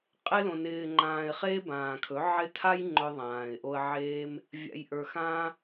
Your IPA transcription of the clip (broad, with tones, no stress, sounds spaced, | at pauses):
qʼ ɪ˧ l õ˨ n ɪː˨ ŋ͡ǃ ãː˨ ɪ̯ χ eː˦ b ãː˨ kʰ ɵ˨˦ ʕ ɪ˧ tʰ a˦ j ŋ͡ǃ ɵ˧ ðˤ ãː˨ ɪ̯ ʔ o˧ ə̯ ʕ eː˦ m | vʲ a̰˧ j ʔ ə˞˧ x ãː˦